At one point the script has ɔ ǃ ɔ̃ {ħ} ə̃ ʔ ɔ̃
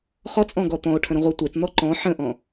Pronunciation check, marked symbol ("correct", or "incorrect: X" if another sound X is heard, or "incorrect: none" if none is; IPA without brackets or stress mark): correct